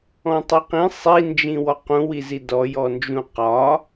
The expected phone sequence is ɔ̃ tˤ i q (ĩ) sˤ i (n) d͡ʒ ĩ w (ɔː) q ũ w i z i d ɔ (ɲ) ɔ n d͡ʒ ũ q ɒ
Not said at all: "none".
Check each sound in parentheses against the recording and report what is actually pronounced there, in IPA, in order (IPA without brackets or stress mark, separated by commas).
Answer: ĩ, n, ɔ, j